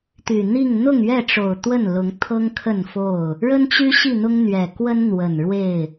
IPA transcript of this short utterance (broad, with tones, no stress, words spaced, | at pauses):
t̪y˨˩n̪i˥˨ŋ n̪ʊ˥˨ŋɥɛ˥˨ʈ͡ʂo˨˩ʊ̯ t̪wə˥˨nlʊ˨˦ŋ t̪ʰɤ˦ŋkʰə˥˨nfo˥˨ʊ̯ | ɻə˦nt͡ɕy˦ɕi˥˨ n̪ʊ˦ŋn̪ɥɛ˨˩kwə˦n n̪wə˨˩n ɻwe˥˨ɪ̯